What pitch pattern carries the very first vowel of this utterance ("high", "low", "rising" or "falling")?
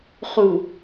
low